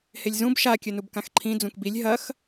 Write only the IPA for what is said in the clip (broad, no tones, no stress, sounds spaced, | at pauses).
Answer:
h e lʲ z ũ b ʃ a kʲ ɵ n u b k ã x ǃʰ ĩ d͡z ũ k b i lʲ ɦ ɐ x